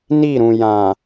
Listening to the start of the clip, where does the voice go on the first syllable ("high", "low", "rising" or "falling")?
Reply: falling